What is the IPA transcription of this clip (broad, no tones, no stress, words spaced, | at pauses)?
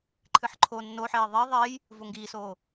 ǃʰɨħǃʰoːnːoħeː ðˤiː ðˤeːj | voŋɡiːsoː